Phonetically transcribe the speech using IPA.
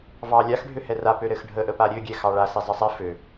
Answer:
v ɑ lʲ a x ɖʱ ø h ɛ r a p ø ɾ ɘ x ɖʱ ə ʔ ə p a ɾʲ ø ɡʲ ɛ x ɑ ɭ a s i zˤ ɘ sˤ ɛ f ø

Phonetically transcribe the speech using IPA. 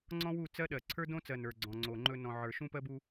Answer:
ŋ͡ǀ ɔ̃˦ w u˦˨ t͡s ɜ˦ ɗ ɜ˨ ǀʰ ə˞˦ d õ˦ t͡s ɜ˨ n ə˞˨ ɡ͡ǀ ɔ̃˨ ŋ͡ǀ o˨ ŋ͡ǃ ɵ˦ n ɔ̃˨ ʕ ə˞˨ ʃ ũ˦ p ɜ˦ b u˦

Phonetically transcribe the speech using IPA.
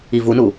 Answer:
i v u n u

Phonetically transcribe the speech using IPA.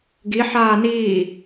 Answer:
ɡ i ħ aː n iː

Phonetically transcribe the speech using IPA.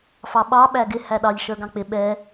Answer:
f ɑ ɓ ɑ ɓ æ ɡ ɪ h æ ɗ ɑ ʎ ʃ ə˞ ɡ ɑ̃ k͡p ɪ ɓ ɛ

